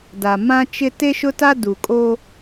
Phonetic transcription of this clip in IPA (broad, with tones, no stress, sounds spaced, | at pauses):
d a˨ m ã˦ t͡ʃ ɪ˦ t e˦ ʃ ʊ˦ t a˦ d u˨ kʼ o˦